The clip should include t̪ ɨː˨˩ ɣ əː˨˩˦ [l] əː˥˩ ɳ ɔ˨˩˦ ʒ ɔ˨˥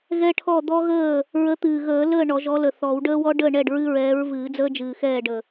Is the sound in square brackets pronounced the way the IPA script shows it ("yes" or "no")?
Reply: yes